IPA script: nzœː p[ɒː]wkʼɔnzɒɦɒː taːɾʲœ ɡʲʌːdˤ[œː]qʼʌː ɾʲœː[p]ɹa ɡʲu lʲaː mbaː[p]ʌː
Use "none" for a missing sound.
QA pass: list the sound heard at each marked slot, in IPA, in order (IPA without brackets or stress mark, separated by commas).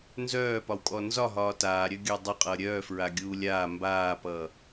ɒ, œ, f, p